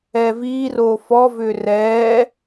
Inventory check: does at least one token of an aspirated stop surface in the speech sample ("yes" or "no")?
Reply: no